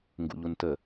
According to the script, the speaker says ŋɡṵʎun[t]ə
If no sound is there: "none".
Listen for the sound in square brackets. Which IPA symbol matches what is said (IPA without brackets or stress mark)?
t